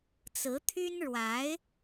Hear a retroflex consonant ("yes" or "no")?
yes